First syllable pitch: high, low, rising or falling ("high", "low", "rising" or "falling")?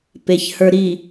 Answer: low